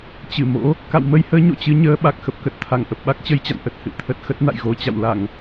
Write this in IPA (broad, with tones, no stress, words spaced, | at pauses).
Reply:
t͡ɕɨ˧˩mo̰˧˥ | ka̰˧˨wmə˧jhəː˨˦ ɲo̰˧˨t͡ɕɨ˧ ɲəː˨˦ ɓa˨˩k̚xə˨˩p̚kə˨˩t̚t̪ʰa˧˩ŋ ʔə˨˩p̚ɓa˦˥k̚t͡ɕə˧jt͡ɕa̰˧˨n ʔə˨˩t̚ hɨ̰˧˨t̪ʰə˨˩t̚ xə˦˥t̚na̰˧˨jɣo˧ t͡ɕa̰˧˨wla˧˩˨ŋ